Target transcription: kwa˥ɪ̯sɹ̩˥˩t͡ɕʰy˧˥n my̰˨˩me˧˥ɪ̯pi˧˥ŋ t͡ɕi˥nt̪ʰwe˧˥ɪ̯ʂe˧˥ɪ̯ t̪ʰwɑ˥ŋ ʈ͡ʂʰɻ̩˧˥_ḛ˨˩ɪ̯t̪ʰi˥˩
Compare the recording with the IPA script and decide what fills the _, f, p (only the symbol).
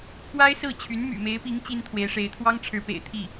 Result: p